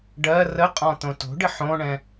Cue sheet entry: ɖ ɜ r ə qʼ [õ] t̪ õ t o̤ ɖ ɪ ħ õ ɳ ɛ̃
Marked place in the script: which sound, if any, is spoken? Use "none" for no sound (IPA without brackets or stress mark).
ɔ̃